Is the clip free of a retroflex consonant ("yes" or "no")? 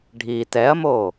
no